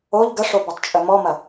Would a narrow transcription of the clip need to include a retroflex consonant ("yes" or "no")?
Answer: yes